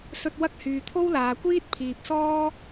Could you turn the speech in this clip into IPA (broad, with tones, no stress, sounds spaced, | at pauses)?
s ɵ˧ t̚ w ɐ˥ k̚ h yː˨ t̪ʰ o˥ w l aː˨ kʷ iː˥ t̚ pʰ iː˨ p̚ s ɔː˥